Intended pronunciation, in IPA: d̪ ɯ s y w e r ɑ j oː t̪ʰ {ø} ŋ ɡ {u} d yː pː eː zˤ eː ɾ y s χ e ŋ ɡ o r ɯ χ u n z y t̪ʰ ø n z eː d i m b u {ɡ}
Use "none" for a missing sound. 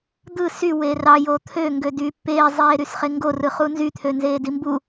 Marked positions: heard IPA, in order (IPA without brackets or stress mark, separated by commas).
ø, ø, none